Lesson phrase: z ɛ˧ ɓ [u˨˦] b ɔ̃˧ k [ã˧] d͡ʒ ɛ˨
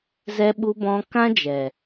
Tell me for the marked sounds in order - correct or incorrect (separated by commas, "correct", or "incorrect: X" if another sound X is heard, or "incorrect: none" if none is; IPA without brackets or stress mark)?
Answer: incorrect: u˧, incorrect: ã˦